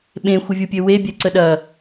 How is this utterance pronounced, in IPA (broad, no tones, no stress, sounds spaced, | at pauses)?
ɓ ẽ xʷ ə vʲ u pʲ ø w e bʲ ɛ ǀ ə ɗ ɐ